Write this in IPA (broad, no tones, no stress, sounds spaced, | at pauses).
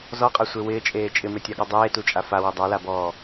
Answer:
z ɔ qʼ a sʷ e w ɪː t͡ʃʼ eː t͡ʃʼ ɪ m e tʲ a ɠ ɔ dˤ eː t u t͡ʃʼ a f a w ɪ dˤ a l a b ɔː